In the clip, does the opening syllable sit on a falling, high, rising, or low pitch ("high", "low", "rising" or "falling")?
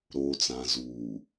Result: low